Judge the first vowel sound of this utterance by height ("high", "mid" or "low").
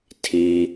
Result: high